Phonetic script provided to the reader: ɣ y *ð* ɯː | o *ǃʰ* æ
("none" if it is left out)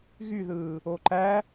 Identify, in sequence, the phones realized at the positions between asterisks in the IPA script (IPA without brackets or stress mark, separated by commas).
ð, ǃ